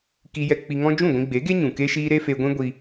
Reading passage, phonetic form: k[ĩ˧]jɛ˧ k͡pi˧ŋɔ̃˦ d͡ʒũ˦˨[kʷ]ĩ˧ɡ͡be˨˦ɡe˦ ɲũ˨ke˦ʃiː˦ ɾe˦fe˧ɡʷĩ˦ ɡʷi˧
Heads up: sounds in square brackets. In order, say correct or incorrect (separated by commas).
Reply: incorrect, incorrect